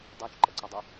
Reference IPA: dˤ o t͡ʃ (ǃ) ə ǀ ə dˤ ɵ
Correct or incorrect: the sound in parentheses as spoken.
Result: correct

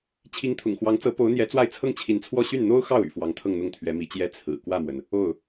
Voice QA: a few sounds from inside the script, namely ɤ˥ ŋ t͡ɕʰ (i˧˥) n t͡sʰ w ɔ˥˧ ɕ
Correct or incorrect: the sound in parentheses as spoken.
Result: correct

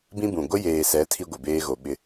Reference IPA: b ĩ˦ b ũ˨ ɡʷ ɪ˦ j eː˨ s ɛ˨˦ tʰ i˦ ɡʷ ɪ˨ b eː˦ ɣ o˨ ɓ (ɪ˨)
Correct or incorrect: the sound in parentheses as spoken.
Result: incorrect: ɪ˦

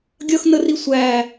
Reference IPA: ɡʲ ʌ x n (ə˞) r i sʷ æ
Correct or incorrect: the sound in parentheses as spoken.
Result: incorrect: ə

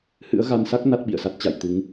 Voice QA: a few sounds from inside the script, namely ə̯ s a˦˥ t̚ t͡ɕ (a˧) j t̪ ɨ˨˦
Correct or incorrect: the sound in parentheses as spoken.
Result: incorrect: a̰˧˨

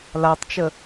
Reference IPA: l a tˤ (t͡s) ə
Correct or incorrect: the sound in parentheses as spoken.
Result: incorrect: t͡ʃ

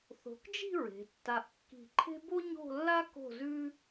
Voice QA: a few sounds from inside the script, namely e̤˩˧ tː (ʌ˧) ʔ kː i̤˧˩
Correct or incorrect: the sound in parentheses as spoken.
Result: incorrect: a˧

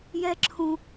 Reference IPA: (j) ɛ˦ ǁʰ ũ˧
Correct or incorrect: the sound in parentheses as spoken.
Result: correct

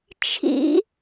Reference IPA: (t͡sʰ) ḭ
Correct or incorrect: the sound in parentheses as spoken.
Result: incorrect: t͡ʃʰ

